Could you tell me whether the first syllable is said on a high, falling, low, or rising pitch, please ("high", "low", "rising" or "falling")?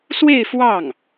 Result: falling